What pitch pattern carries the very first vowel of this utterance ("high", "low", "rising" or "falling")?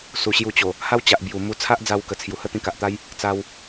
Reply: low